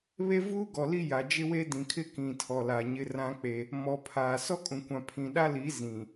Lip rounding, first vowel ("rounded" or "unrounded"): unrounded